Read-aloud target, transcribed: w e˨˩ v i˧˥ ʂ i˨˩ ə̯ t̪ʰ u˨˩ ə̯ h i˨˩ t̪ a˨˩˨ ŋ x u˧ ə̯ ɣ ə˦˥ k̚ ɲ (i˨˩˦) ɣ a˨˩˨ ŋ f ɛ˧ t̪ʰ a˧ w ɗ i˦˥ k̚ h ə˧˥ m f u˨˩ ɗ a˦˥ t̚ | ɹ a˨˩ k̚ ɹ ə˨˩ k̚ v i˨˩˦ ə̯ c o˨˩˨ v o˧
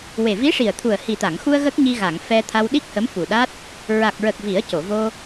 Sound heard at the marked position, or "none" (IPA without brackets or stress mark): i˧